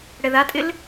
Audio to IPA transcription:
ɽɛðatʼɪl

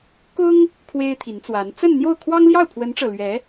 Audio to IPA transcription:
kʊ˥ŋ | kʰwe˥ɪ̯t̪ʰi˧˥nt͡swa˧˥n t͡sə˥˧nn̪jo˥˩ʊ̯ kʰwɑ˥ŋljɑ˥˩ʊ̯pʰwə˧˥nʈ͡ʂɤ˨˩ lɥɛ˧˥

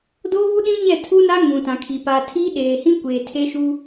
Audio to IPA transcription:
doː˦βu˦ɗĩ˦ɲɛ˦˨ tʰu˦na˦ ŋũ˨tã˨kʰi˨ pa˨tʰi˦ɗeː˨hĩ˦ kʷeː˨tʰe˦ʃu˦

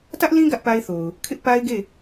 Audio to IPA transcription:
tä˦ʔlĩ˦ ɡä˦ʔpa˦ɪ̯θo˨ʊ̯ | kʰɪ˦ʔpa˦ɪ̯ɡe˦˨

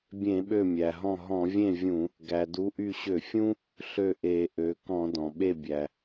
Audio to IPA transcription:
bʲẽ˧˩˧ɓø˧˩mʲæ˩ɦɔ̃˧˩ ɦɔ̃˧˩˧vʲẽ˥˩vʲũ˧˩˧ | ɡæ˩du˩˥ʔy˧˩ ɕø˧˩˧fʲũ˦ | ɬø˥˩ʔe˧˩˧ʔø˩˥ kɔ̃˧˩˧dɔ̃˩ɓe˥˩ bʲæ˩

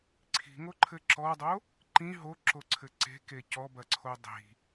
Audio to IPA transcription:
ǀʰi̤ŋoǃʰɘ ǁɔdˤo | ǃĩ ɦoǁoǀʰɘ ǀe̤ke cɔbɐǀʰo dˤi̤

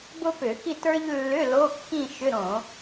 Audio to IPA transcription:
bʊ˥pʏ˧˩˧xi˥˧tə˞˥ʎ lːʏ˧˥˧ lo˧˥˧kːĩ˥˧ ʃʏ˧˥˧ ɾõ˧˩˧

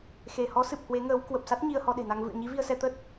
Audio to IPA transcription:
xe˧˩hɔ˨˦sɨ˨˩p̚ hwe˨˦ŋəː˨˦w kwə˨˩p̚sa˦˥t̚ ɲi˧ə̯hɔ˧ɗe̤˨˩na˧ŋ vɨ̰˧˨ə̯ɲi˨˦ vi˧ə̯sɛ˧t̪ə˦˥t̚

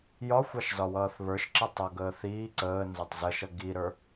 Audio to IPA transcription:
jɒxʷɑʃ zɒwʌːθβə˞ʃǁə tˤaɡəː θiː ǀəː nzatˤzəʃʌ ɡiɾə˞

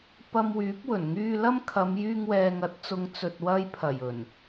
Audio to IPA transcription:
pɐ˧mwyː˨˥p̚wɵ˨˩n ŋyː˧lɐ˥mkʰɐ˨˧m jyː˧ŋwɛː˨ŋɐ˨˥t̚t͡sʊ˨˧ŋ t͡sɵ˨t̚wɐ˧jpʰɐ˨˩j ɵ˨˩n

